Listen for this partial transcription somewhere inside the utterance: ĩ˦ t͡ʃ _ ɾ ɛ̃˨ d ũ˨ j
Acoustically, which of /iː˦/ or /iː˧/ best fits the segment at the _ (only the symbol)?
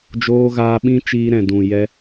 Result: iː˧